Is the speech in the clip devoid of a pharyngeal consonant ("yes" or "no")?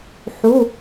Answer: no